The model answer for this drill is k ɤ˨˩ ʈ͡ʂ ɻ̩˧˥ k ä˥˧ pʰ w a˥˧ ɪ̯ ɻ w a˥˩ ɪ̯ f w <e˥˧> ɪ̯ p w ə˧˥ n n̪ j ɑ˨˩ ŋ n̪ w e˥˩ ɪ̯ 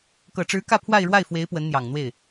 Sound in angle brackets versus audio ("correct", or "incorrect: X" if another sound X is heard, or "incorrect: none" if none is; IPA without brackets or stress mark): incorrect: e˧˥